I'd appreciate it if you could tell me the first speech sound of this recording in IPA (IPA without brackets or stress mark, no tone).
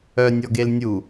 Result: œ